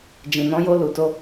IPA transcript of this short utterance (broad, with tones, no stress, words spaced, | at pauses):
d͡ʒĩ˨nɔ̃˧jo˧ lu˨to˧